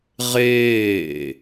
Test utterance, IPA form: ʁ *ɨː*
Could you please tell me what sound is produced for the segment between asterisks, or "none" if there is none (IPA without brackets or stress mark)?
eː